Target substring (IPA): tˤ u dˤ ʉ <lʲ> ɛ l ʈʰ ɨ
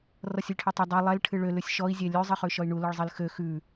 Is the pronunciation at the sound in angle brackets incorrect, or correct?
incorrect